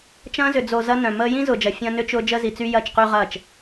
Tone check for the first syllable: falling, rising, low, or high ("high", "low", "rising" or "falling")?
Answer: high